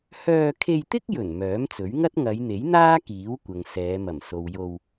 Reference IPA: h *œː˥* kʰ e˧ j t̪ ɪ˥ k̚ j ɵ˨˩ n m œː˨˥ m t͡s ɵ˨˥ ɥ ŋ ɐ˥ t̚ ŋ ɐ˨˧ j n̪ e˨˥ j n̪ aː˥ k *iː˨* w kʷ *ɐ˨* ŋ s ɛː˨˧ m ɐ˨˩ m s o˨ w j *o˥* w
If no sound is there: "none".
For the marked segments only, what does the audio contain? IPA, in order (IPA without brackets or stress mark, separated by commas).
œː˧, iː˨˥, ɐ˨, o˧